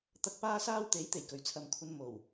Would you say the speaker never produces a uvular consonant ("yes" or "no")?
yes